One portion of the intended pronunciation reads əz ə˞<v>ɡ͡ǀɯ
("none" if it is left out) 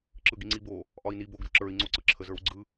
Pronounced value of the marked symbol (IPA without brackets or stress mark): w